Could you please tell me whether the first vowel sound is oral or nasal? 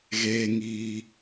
oral